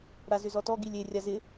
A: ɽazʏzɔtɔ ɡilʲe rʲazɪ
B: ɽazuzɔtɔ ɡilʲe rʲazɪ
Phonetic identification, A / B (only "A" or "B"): A